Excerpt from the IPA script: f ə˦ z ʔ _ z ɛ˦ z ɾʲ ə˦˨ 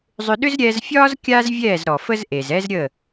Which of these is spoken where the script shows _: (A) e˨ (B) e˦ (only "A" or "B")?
A